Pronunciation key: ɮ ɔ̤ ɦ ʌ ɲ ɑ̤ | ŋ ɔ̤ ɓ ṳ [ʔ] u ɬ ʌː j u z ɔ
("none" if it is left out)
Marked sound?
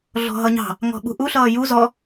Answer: ʔ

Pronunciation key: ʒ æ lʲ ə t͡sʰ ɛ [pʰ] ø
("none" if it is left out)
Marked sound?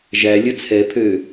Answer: pʰ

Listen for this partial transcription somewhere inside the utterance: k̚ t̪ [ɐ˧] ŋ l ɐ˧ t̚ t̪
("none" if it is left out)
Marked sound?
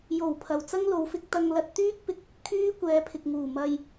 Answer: ɐ˧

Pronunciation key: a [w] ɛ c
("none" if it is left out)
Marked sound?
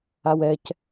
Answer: w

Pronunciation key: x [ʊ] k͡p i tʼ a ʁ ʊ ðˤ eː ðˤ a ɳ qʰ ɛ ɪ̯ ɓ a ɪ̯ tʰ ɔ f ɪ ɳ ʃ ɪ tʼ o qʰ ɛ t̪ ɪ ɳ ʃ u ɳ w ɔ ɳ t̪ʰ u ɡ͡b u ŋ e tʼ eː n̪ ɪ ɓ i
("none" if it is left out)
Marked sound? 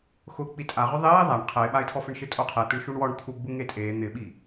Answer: ʊ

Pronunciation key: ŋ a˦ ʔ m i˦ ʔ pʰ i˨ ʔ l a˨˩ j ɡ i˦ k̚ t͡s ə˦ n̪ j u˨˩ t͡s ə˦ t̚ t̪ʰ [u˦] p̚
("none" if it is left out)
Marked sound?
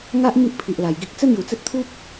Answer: u˦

